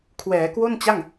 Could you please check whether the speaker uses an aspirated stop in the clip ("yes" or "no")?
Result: yes